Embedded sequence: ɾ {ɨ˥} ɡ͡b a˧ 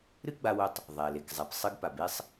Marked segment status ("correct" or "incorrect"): correct